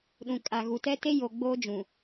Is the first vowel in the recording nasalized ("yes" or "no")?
yes